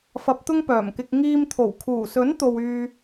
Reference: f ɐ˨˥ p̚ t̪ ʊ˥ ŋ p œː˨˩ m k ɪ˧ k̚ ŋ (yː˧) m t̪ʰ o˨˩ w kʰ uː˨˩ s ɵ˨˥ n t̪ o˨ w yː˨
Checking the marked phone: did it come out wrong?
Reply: yes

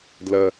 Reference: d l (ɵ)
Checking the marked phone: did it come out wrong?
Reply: yes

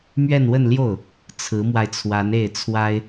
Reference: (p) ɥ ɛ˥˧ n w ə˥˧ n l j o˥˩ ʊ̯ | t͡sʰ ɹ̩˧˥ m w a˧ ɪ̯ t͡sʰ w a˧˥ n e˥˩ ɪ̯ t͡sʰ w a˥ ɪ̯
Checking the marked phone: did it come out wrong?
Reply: yes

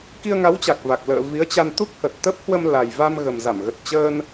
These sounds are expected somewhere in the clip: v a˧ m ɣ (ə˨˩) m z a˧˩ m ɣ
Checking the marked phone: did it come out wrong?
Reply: no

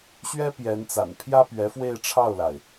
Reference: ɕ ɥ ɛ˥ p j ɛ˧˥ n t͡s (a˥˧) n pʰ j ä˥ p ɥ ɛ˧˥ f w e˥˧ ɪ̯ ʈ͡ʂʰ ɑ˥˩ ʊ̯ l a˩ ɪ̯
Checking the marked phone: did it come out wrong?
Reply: yes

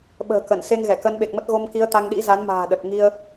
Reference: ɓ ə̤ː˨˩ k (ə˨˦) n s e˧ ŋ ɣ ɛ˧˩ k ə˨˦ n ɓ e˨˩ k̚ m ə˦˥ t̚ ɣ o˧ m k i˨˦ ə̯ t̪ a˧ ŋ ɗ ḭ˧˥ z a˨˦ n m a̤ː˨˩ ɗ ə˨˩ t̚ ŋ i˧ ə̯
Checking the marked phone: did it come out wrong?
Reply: yes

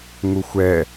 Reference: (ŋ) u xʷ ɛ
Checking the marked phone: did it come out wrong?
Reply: no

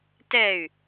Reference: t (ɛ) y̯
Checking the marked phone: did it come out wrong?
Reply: no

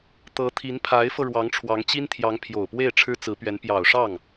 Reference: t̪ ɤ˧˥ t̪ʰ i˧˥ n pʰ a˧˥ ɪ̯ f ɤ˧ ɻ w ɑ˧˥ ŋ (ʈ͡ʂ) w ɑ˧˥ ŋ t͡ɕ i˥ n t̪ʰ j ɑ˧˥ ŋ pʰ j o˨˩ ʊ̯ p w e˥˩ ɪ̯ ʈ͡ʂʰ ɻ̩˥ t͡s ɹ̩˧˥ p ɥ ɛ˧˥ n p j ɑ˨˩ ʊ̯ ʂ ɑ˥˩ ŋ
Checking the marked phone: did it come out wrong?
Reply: yes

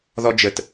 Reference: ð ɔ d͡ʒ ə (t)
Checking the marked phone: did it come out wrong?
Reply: no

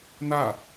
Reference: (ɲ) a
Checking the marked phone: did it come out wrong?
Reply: yes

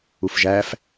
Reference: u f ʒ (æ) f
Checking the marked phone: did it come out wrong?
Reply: no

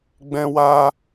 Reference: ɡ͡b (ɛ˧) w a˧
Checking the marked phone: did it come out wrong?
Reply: yes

